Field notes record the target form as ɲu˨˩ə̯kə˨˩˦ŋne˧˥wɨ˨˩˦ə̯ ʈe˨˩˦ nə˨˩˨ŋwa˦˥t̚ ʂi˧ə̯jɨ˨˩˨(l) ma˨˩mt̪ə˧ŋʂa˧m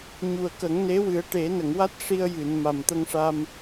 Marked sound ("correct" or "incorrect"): incorrect